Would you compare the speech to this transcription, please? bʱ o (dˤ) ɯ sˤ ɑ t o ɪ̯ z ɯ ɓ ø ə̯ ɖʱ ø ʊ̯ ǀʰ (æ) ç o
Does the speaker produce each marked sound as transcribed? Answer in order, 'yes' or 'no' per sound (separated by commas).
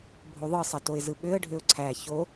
no, yes